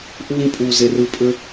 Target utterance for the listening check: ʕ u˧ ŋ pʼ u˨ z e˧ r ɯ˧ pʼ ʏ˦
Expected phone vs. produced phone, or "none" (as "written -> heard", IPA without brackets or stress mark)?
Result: ʕ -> ʔ